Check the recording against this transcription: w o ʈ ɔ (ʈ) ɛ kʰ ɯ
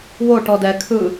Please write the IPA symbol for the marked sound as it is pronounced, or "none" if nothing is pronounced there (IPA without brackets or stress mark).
d